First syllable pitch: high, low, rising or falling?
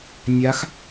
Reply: rising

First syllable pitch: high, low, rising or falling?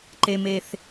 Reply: low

